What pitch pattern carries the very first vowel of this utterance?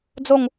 falling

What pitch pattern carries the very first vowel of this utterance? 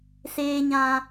low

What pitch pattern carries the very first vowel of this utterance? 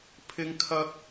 high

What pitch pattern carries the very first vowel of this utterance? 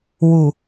low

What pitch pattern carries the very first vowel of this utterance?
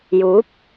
rising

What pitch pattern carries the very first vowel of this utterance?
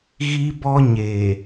high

